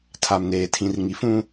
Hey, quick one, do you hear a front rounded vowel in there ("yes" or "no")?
no